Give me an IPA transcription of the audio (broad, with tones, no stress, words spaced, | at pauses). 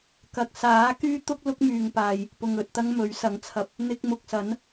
kɐ˨k̚saː˨˥ kyː˥t̪ʊ˥k̚ lʊ˥k̚myː˨ŋpaː˨j | pʊ˨ŋɵ˨t̚t̪ɐ˥ŋ mɵ˨˥ɥsɐ˨˥ŋt͡sʰɐ˧p̚ | n̪ɪ˧k̚mʊ˨k̚sɐ˨˥n